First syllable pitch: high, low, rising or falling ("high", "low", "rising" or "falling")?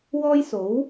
high